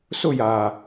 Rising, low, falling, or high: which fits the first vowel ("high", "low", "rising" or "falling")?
falling